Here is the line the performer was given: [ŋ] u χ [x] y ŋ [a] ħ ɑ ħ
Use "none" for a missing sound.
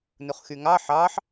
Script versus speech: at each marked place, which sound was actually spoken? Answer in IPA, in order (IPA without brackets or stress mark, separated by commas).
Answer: n, x, ɑ